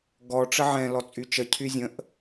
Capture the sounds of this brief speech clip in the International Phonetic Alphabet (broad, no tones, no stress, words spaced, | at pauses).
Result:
ɡɔ ʈ͡ʂəʕɛ̃ lɔt͡sʼyt͡ʃə cʰyzʲə̃ʔ